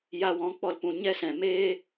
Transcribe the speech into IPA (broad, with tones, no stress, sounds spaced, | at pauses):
j a˧ w ɔ̃˨˦ k͡p ɔ˧ l p ũ˧ ɲ ɛ˦ s ɛ̃˨ m eː˦